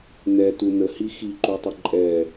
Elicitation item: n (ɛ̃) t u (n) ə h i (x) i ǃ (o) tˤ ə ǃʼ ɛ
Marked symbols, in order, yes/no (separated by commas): no, yes, yes, no